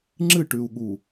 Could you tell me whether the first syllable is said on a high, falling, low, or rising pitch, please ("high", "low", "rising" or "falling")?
falling